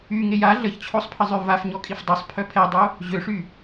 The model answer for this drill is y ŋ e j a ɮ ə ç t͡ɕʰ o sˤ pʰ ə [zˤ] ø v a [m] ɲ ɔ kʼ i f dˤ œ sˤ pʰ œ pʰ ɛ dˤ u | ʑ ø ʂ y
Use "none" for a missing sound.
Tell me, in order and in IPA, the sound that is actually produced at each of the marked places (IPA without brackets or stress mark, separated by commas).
zˤ, f